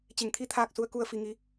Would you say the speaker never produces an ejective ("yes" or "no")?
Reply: yes